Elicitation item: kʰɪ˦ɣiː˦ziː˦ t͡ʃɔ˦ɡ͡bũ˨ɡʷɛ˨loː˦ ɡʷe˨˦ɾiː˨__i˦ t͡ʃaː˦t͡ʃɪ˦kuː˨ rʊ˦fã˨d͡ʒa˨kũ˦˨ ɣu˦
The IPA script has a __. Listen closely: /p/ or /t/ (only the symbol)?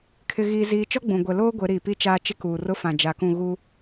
p